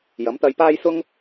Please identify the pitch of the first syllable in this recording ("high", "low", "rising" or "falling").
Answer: rising